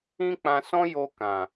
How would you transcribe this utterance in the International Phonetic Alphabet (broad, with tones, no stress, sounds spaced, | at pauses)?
ĩ˦ k͡p ã˧ s ɔ̃˦ j o˧ k ã˨